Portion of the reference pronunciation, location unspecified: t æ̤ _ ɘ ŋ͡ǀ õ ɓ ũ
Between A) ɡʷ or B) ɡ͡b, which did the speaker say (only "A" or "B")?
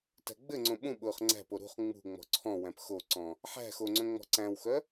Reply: B